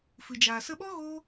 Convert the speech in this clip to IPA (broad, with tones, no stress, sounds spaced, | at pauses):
f ɨ˨ d͡ʒ aː˨ s ə˧ ɓ ɔ˦ ɣ oː˦